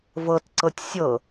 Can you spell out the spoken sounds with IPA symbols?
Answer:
v ɤ t ǀ ɤ tʲ sʲ ɤ

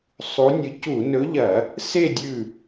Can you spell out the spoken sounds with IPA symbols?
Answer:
sˤ u˨˥ nʲ ɨ˨˥ c u˧˩˧ n ɵ˨˥ ʎ ɐ˧˩˧ | s e˥˨ dʲ ʉ˥˨

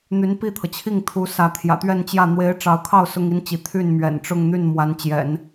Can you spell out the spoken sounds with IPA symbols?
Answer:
n̪ y˧˥ n p i˥˩ t̪ʰ ɤ˩ t͡ɕʰ i˥˩ ŋ t̪ʰ u˧˥ s ä˧˥ t̪ʰ j ä̰˨˩ t̪ ɥ ɛ˥˧ n t͡ɕ j ä˥˩ n̪ w e˧˥ ɪ̯ ʈ͡ʂ ɑ˧˥ ʊ̯ kʰ ɑ˥˩ ʊ̯ s ʊ˥ ŋ i˥ n t͡ɕ i˧˥ t̪ʰ y˥˩ n m ɥ ɛ̰˨˩ n ʈ͡ʂ ʊ˥˧ ŋ n̪ y˥˩ n m w a˧˥ n t͡ɕ j ɛ̰˨˩˦ n

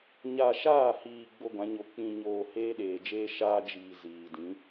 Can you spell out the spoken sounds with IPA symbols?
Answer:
ɲ a˨ ʃ aː˦˨ h iː˨ ɡ͡b o˦ ɡʷ ã˨˦ ɲ o˨ k͡p ĩ˨ ɲ oː˨ h eː˦ ɗ eː˨ d͡ʒ eː˦ ʃ aː˦ d͡ʒ iː˨ z iː˨ d ĩ˨˦

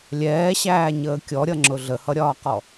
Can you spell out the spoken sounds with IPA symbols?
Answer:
lʲ ɛː ɕ æː ɲ əː kʲ ɔ ɾʲ ʌ ŋ͡ǁ ʊ ɮ ə h ʌ ɾʲ ɒː q ɔ

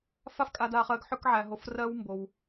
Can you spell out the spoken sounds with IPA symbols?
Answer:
f a˥ f kʼ a˧ d a˧ χ ɜ˧ ɡ ħ ø˥ k ʕ æ˧ ɦ o˧ f r ɜ˧ w m b o˧ w

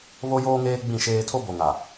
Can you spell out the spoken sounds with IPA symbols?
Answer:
β o˦ j oː˦ ŋ eː˦ ɡ͡b ĩ˦˨ ʃ eː˦ tʰ o˦ b o˨ ŋ a˨

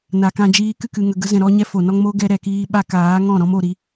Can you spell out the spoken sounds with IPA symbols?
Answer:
n a˨ k ã˧ d͡ʒ iː˧ k ɨ˦˨ k ɨ˧ ŋ ə˧ ɡ ə˦ z ɛ̃˧ ɾ ɔ˦ ɲ ɛ˦ f o˨ n ɔ˧ ŋ m o˦ ɡ ɛ˧ ɾ ɛ˨ k iː˧ ɓ a˦ k aː˨˦ ŋ ɔ̃˦˨ ɾ ɔ̃˦ m o˧ ɾ i˧

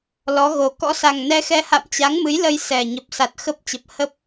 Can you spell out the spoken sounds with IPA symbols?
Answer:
l ɔ˨˦ ɣ o˨˩ k ɔ̰˧˥ s a˨˩ ŋ n ɛ˧ x ɛ˧ h a̰˧˨ m t͡ɕ a˨˦ ŋ m ɨ˨˦ j l ə˧ j s ɛ˨˩ ɲ ə˨˩ p̚ s a˨˩ t̚ x ə˦˥ p̚ t͡ɕ ə˨˩ p̚ h ə˦˥ p̚

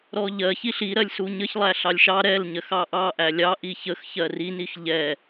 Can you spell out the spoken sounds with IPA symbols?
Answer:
ɾ ɔ ʎ ɜ ç i ɬ i ɾ ɜ lʲ s u ɲ ə ç lˠ æ ɬ ɑ lʲ ʃ ɑ ɾ ɛ l ɲ ɜ x ɑ ʔ ɑ ʔ æ lʲ ɑ ʔ i ç ə x ç ɜ r i n i x ʎ ɛ

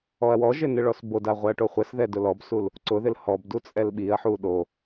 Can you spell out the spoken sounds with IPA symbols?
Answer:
ɔ ɐ̯ w ɔ ʒ ɪ n ɪ ɭ ɔ s b o d a ʁʷ ɛ ɐ̯ ʈ o χʷ ɛ s ð ɛ d ʊ l ɔ b s u l | ǀ ʊ ð ɪ l h ɔ b d u t͡sʼ ɛ l ɓ i ɐ̯ ħ u ɗ o

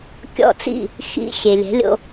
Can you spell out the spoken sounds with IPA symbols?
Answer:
kʲ ɔ̰˥˩ t͡s ḭ˥˩ | x ḭ˧ xʲ e˩ lʲ ɛ̤˩˥ lʲ o̰˧

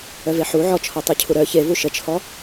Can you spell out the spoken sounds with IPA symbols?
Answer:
œ v e ħ u ʕ ɔ t͡ʃʰ ɔ tˤ i cʰ u ɾ œ ç e v u ʃ ə t͡ʃʰ ɔ

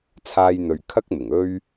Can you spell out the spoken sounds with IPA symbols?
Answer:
t͡sʰ aː˧ j n̪ ɵ˨ ɥ kʰ ɐ˥ k̚ m ɪ˨˩ ŋ ɵ˥ ɥ

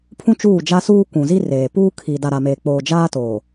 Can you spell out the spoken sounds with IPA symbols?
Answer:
pʰ ũ˦ t͡ʃ uː˦˨ d͡ʒ a˦ s uː˦ kʷ ũ˨ z i˦ r eː˨ p uː˦ kʰ i˨ d a˨ ɾ a˨ m eː˨ k͡p oː˨ d͡ʒ aː˦ t oː˨

